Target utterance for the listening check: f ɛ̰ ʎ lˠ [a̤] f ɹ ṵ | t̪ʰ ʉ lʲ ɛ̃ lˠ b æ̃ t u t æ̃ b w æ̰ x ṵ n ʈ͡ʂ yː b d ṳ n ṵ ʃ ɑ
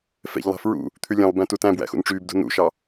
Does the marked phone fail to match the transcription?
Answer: yes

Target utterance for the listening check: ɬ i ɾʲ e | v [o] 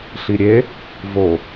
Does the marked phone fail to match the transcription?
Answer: no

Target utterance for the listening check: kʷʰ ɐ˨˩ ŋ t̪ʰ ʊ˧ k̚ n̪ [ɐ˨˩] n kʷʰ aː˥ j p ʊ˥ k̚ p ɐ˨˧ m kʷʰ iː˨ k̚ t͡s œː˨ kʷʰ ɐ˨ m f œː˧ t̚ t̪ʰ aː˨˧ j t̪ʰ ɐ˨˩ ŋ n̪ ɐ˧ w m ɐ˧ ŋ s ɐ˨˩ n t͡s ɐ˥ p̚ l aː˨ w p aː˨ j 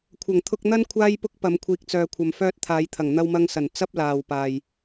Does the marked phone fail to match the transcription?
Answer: yes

